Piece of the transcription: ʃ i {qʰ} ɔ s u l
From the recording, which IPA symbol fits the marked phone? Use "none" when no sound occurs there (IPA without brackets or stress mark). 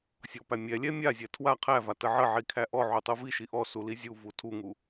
ʔ